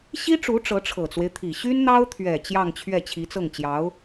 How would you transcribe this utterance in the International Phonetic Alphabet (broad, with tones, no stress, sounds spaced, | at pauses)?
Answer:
ɕ i˥ ʈ͡ʂ u˧˥ ʈ͡ʂ ɤ˧˥ ʈ͡ʂʰ ɤ˨˩ t͡s w e˦ ɪ̯ t̪ʰ i˨˩ ɕ y˥ n n̪ ɑ˥ ʊ̯ t̪ʰ ɥ ɛ˨˩ t͡ɕ j ɑ˥˧ ŋ t͡ɕʰ ɥ ɛ˥˩ t͡ɕʰ i˧˥ t͡s ɤ˥˩ ŋ t͡ɕ j ɑ˧˥ ʊ̯